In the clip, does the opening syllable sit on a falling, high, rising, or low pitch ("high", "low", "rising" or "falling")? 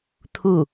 falling